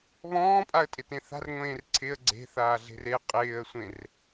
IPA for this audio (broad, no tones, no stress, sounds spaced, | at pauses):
β ɔ̃ː pʼ a ə̯ tʼ ɪ t ẽ θ a̤ r ŋʷ ẽː r ǀʰ ɪ ə̯ ɡ͡ǀ e̤ θ aː ɮ e̤ r e qʼ ɪː ə̯ sʷ ẽ r